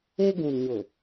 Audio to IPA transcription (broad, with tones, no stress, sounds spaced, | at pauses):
e˦ ɡ ũ˨ n ɲ ʊ˨